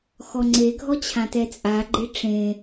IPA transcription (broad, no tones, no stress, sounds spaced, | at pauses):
x ɔ ŋ͡ǀ e ɡʱ ɔ t͡ɕʰ ã t ɛ t͡sʼ a ɡ͡ǃ e ʈ͡ʂ ẽ